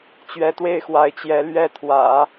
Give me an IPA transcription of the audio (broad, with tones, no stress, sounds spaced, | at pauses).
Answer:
t͡ɕ ɥ ɛ˧˥ t̪ w e˥˩ ɪ̯ x w a˧˥ ɪ̯ t͡ɕ j ɛ˧˥ l ɥ ɛ˥˩ t̪ʰ w ä̰˨˩˦